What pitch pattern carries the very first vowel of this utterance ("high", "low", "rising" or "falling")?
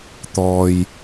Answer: low